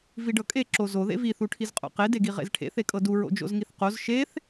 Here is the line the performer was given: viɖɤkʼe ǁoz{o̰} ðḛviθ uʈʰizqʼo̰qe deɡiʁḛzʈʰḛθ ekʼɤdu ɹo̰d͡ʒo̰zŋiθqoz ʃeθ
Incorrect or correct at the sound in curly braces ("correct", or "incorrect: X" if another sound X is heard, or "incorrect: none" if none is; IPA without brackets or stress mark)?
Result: incorrect: o